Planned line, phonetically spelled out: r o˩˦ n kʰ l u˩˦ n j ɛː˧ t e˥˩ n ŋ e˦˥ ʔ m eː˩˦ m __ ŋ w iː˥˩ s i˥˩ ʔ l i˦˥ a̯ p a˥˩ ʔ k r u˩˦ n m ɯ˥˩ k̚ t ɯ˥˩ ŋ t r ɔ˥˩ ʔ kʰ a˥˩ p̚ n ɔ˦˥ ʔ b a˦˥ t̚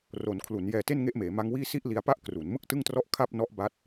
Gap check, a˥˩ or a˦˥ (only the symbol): a˦˥